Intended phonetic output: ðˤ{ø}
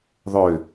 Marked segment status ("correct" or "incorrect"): correct